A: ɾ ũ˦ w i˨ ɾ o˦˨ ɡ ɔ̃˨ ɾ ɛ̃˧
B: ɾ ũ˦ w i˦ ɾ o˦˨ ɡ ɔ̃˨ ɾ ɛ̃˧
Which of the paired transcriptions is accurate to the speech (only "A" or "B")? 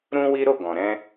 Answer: B